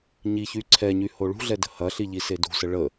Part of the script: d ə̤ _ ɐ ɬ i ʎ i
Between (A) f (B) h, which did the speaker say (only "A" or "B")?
B